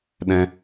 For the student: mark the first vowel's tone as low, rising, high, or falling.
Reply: high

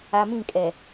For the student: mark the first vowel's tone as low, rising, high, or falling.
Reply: low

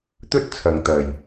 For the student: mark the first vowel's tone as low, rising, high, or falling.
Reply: high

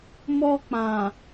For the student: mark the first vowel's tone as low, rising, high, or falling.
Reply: high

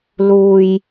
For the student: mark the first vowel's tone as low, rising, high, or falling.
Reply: low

